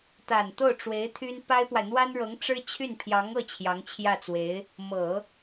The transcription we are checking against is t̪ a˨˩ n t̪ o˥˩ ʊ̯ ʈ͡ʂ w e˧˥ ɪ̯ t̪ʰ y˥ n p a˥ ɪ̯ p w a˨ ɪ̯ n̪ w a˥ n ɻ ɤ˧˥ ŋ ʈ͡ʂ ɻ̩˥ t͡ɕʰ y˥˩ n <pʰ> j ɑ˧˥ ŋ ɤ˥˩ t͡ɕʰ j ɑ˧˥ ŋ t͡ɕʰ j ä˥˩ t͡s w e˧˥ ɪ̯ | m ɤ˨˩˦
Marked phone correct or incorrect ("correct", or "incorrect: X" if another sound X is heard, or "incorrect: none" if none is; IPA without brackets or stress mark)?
correct